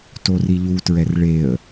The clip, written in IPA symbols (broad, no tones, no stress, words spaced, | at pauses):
toriʎutɹɛr ɭeə̯